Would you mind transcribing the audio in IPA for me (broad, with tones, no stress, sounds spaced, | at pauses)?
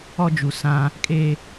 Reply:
ɔ˦ d͡ʒ u˨ s ã˦ | kʼ e˦